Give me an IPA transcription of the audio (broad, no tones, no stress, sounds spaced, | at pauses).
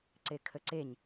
ǀ e kʰ ə ǀ e ɲ